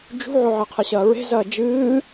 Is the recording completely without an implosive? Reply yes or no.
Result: yes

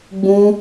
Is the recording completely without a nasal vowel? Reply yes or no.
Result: no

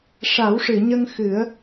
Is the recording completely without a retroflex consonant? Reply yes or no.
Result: no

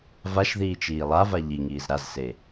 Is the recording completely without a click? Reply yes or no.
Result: yes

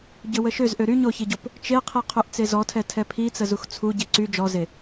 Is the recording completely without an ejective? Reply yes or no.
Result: yes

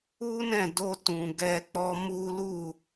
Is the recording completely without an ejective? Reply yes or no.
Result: yes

